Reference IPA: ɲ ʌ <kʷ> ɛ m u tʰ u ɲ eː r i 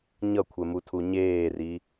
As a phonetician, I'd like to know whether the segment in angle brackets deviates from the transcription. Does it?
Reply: yes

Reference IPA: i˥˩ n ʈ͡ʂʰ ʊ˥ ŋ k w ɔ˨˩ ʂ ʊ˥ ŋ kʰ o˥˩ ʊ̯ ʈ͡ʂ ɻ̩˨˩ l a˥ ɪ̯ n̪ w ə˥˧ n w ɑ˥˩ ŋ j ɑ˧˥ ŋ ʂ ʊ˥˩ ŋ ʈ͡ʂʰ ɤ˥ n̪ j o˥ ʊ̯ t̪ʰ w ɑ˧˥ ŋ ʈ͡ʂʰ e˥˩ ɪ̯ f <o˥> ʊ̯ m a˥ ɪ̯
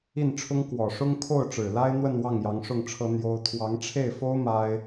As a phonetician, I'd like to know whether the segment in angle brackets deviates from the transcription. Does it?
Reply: no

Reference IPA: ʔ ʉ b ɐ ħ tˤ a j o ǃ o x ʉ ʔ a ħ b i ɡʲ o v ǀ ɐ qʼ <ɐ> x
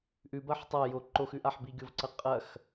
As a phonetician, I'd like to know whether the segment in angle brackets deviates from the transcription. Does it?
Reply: no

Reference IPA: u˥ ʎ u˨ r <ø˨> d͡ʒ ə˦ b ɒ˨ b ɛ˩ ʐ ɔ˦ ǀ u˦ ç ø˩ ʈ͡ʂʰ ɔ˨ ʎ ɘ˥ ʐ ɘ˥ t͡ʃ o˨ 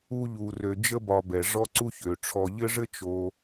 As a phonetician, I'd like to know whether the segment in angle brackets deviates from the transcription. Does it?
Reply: no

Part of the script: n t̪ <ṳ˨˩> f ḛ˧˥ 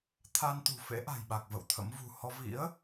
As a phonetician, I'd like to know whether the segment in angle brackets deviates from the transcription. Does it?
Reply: no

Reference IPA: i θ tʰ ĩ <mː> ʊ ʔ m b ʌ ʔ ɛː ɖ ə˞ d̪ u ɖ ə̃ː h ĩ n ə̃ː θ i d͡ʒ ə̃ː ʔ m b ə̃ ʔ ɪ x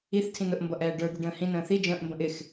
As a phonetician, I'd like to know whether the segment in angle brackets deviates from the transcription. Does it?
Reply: yes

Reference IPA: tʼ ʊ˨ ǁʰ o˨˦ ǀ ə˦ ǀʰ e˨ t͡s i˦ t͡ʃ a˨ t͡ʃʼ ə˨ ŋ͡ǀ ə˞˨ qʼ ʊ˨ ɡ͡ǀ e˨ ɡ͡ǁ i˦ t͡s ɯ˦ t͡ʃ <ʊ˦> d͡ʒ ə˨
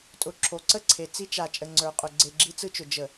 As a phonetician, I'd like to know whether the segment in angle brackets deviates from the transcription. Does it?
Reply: yes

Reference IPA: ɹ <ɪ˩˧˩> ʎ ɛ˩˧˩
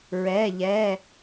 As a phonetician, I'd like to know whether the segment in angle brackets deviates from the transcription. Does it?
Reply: yes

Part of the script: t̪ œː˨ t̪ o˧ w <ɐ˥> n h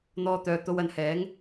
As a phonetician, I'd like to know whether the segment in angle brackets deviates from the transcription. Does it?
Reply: yes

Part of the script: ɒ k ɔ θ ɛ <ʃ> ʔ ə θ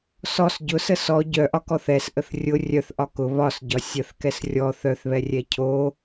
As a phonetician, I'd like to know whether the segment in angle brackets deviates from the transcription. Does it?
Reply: yes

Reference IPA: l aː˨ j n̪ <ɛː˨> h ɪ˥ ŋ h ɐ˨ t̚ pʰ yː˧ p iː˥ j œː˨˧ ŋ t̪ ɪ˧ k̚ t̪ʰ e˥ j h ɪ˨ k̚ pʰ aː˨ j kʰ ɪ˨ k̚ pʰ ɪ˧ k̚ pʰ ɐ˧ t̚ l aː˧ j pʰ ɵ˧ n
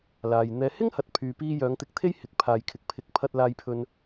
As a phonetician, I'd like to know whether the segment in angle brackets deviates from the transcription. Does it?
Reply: no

